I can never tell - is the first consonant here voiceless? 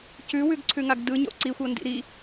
yes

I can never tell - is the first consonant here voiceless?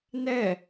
no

